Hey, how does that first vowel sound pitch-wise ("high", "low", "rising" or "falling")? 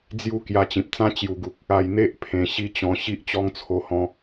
falling